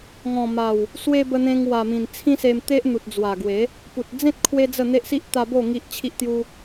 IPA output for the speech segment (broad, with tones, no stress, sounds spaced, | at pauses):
ŋ ɔ̃˨˩ m a˨˩ w | s w e˧ b ə˧ n̪ ẽ˧ ŋ w a˨˩ m ĩ˨˩ n t͡sʰ ĩ˦ s e˧ m t̪ e˦ ʔ n̪ u˨ t̚ d͡z w a˨˩ ɡ w e˨˦ | p u˨ t̚ d͡z ẽ˦ t̚ kʰ w e˦ d͡z ə˥˧ n̪ e˦ ʔ s i˦ ʔ t̪ a˧ b o˥˧ ŋ i˦ ʔ t͡ɕʰ i˦ ʔ t̪ j u˦